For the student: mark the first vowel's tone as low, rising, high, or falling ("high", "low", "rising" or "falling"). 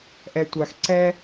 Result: low